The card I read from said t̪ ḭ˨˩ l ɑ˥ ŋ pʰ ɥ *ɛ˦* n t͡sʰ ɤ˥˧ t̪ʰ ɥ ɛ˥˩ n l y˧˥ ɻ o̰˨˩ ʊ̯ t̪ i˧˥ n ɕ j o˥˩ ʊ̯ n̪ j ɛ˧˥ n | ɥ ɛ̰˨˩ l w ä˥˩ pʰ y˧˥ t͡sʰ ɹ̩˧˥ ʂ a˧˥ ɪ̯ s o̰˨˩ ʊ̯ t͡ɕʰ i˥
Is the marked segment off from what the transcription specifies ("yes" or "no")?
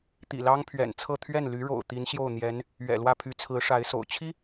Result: yes